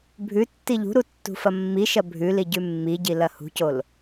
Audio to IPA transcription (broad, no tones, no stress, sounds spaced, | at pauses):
bʱ ʉ tː i ʎ ṳ ɾ u tː ṳ f ɐ mː i ʃ ɐ bʱ ʉ l i ɟ ʉ mː i ɟ i l ɐ h ṳ c o l